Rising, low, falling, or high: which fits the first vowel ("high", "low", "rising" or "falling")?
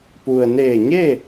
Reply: low